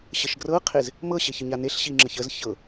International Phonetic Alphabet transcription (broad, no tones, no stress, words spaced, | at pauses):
ɕəʃɡrɤqʰez | mɤɕeç əɲaneɬɕi ŋ͡ǁəçəz çɤ